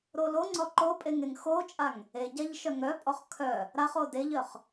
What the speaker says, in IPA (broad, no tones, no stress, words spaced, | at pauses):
ɾoloŋ͡ǀɔ ǃopʼeŋ eŋxot͡ʃʼaŋ | eɟaʎ ʃœŋɾœpʼɔχ kʰœ | ɾaχo deʎœχ